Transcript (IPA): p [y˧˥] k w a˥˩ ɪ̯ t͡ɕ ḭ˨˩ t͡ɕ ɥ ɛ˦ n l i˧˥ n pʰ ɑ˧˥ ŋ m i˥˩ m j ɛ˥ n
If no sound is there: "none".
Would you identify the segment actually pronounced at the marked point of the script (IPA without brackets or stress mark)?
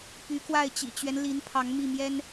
y˧˥